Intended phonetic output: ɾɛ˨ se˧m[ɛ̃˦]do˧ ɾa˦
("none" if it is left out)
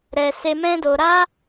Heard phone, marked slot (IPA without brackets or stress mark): ɛ̃˦